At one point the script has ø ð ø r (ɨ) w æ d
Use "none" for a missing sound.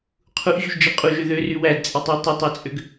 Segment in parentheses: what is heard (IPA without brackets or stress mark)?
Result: y